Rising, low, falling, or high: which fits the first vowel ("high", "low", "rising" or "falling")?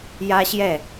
high